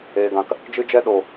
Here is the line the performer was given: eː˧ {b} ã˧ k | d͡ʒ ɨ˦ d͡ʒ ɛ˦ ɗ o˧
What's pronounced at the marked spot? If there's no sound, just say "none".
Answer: ɡ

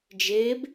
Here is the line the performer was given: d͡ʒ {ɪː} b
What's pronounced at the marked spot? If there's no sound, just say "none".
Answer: ɪː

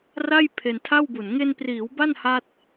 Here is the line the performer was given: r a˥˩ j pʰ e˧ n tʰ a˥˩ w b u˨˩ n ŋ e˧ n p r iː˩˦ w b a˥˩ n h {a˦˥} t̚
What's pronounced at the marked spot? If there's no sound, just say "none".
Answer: a˦˥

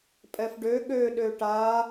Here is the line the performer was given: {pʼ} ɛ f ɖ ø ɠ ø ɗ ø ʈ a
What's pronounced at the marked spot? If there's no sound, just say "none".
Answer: pʼ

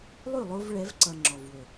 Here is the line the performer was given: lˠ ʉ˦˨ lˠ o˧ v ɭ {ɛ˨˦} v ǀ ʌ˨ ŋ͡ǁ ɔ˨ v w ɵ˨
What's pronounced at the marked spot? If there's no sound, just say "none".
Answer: ɛ˨˦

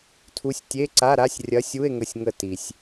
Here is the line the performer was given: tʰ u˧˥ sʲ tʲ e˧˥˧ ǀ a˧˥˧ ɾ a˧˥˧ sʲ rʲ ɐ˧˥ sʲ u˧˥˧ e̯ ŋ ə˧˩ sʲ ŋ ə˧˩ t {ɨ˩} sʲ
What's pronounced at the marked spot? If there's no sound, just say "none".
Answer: i˩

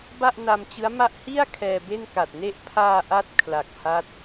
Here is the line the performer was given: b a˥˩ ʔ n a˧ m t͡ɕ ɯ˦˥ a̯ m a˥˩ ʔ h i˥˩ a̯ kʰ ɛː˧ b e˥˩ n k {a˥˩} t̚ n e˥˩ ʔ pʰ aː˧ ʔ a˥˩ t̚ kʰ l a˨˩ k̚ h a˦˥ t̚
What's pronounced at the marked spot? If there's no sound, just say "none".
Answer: a˨˩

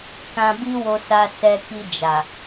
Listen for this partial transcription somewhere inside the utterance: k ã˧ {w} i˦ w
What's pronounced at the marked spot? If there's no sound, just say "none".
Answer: b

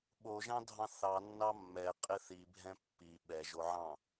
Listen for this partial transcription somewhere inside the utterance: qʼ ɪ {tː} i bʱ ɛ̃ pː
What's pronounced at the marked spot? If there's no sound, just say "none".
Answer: θ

